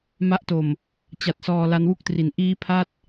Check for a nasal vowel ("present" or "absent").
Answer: absent